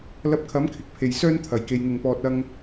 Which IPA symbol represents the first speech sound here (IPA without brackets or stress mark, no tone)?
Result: l